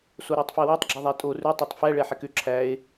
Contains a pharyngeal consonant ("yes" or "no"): yes